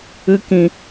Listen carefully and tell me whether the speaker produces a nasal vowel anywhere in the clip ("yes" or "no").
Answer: yes